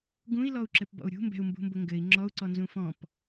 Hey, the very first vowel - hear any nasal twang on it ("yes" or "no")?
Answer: yes